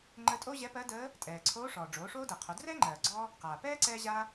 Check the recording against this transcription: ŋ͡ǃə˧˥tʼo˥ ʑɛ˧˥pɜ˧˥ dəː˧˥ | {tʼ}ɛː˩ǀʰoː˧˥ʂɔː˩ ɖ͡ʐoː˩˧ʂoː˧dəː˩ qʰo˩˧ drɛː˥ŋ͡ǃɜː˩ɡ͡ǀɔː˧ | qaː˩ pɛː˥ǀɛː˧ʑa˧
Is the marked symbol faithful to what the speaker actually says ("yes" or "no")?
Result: yes